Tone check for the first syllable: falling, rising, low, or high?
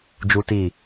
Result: high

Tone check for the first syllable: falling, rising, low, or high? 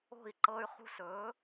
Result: falling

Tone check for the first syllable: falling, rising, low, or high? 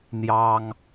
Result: high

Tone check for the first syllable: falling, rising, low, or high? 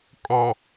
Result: low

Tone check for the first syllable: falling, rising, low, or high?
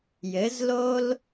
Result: rising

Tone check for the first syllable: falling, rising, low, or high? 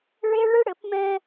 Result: high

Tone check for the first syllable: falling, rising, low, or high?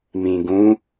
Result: low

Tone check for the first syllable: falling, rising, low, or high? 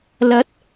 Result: rising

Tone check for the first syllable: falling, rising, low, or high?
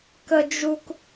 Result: high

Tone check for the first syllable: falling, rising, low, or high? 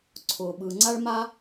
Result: low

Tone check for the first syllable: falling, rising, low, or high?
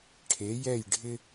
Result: rising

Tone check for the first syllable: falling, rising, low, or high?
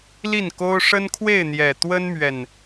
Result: falling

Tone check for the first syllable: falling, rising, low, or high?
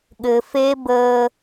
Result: low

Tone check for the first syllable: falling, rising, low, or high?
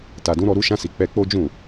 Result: low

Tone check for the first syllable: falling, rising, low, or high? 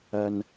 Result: low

